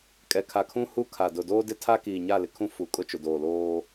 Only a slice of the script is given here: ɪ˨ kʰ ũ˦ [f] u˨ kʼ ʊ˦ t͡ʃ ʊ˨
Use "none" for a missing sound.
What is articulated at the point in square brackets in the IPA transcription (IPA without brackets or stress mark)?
f